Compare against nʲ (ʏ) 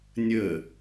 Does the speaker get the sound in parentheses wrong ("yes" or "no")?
yes